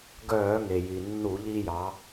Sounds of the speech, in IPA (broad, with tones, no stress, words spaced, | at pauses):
ɡœː˧˩˧ŋe˩ ji˩ nːu˧˩˧ʎi˧jɑ˩˧